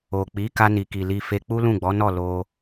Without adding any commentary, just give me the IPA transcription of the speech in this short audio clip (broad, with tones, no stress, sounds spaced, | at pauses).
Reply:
o˨ k͡p i˨˦ k a˧ n i˨ k i˨ l i˧ f e˧ k͡p u˦ l ũ˦˨ ɡ͡b ɔ˨˦ n ɔ˦˨ l o˧